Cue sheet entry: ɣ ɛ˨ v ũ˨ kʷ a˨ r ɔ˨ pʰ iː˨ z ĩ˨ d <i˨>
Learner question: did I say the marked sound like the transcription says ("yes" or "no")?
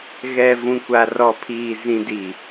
yes